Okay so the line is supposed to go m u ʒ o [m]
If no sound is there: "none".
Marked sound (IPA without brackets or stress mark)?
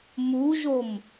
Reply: m